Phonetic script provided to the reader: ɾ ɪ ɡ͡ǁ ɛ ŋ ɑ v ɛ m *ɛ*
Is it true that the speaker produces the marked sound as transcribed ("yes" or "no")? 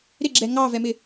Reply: no